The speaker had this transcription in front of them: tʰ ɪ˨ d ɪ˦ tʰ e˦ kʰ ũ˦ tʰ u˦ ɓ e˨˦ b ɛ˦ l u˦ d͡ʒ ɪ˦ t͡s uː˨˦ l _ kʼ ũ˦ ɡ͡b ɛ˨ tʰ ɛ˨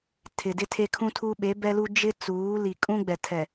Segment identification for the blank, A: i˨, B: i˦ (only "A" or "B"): A